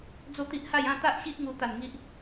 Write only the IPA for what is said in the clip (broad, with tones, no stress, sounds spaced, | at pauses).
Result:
d͡z o˥˧ t̪ i˦ ʔ h a˥˧ j ã˥˧ t̪ a˦ ʔ ɕ i˦ ʔ ŋ u˦ t̪ a˥˧ n ŋ i˦ ʔ